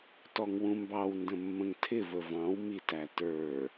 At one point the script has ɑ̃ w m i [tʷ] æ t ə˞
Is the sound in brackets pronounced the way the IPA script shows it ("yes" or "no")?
no